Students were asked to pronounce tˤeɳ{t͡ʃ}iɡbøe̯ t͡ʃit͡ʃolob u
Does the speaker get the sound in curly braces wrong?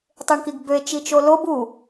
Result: yes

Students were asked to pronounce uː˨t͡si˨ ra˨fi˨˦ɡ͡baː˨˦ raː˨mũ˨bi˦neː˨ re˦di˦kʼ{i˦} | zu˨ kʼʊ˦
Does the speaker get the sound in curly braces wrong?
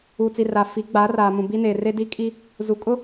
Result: no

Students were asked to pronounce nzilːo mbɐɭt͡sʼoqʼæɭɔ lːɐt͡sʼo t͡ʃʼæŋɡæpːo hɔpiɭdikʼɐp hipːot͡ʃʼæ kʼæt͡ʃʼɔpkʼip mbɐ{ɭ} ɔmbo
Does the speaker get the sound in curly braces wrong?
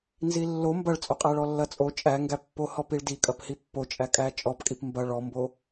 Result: no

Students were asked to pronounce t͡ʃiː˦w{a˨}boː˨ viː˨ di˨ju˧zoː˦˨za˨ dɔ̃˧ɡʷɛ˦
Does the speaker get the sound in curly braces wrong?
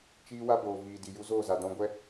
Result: yes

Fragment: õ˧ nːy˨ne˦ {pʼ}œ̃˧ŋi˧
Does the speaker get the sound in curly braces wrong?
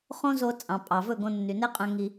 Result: yes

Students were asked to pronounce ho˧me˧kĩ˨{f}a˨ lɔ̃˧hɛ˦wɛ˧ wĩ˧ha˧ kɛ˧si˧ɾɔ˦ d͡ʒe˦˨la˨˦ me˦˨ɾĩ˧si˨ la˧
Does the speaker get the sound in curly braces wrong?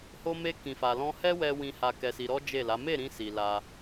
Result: no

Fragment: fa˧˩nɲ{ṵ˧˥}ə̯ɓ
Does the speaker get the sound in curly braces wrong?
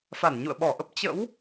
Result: yes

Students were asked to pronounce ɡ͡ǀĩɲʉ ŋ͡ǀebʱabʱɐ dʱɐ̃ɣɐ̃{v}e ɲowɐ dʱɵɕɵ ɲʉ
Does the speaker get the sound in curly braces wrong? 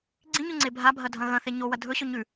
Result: yes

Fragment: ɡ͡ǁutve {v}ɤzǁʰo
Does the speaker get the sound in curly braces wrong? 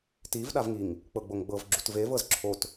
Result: no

